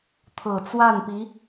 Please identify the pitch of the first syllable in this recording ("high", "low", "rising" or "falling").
low